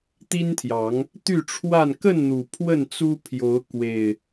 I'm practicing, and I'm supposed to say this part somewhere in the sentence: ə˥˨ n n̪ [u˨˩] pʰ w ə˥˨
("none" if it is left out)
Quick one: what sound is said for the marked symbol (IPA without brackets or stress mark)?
u˨˩